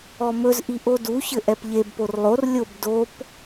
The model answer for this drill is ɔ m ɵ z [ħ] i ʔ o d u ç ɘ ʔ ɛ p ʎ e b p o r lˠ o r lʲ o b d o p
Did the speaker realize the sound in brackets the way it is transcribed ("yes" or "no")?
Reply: no